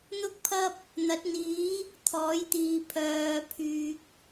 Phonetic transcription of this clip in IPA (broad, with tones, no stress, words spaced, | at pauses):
n̪ʊ˥k̚pʰɐ˥p̚ | n̪ɐ˨˥t̚n̪iː˨˥ | t̪ʰɔː˨˥jt̪iː˨ pʰœː˨pʰyː˨k̚